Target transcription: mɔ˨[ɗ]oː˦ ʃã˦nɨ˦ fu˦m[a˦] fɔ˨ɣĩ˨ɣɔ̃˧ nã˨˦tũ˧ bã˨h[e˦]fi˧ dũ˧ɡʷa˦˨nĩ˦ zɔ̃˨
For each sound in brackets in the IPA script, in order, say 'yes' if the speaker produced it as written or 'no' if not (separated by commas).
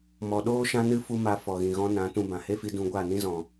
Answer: yes, no, yes